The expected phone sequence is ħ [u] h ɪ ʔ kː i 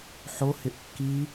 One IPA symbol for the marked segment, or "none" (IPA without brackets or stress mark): o